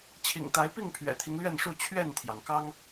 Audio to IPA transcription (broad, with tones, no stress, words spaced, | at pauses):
t͡ɕʰḭ˨˩ŋt̪a˨˦ɪ̯pi˥˨ŋ pʰɥɛ̰˨˩t̪ʰi˦ŋlɥɛ˥˨nʂu˥˨ t͡ɕʰɥɛ˥˨nt̪ʰjɑ˩ŋ kɑ˦ŋ